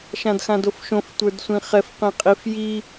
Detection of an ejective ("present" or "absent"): present